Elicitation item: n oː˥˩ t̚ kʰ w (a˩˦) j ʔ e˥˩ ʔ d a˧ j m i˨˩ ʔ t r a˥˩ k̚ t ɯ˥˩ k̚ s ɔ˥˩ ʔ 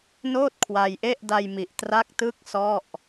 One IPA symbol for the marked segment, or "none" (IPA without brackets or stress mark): a˧